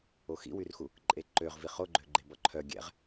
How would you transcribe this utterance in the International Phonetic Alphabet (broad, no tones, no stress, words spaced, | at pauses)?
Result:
oxḭwyrxu | ǃʼeǃøʁ viχoɡ͡ǃøɡ͡ǃe bɔǃʰœ ɡʲɛ̰ʁ